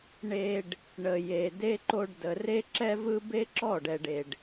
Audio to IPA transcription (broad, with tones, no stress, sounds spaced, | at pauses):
ɳ e˧ ɖ | ɳ ə˨ j e˨ d e˧ ǃ o˧ ɖ d ə˨ r e˧ ǁ ɛ˧ v ɯ˧ b e˦ ǁ ɔ˦˨ ɖ ɛ˨ ɖ e˨ ɖ